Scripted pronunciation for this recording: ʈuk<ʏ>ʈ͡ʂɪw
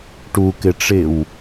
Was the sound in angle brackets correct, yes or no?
no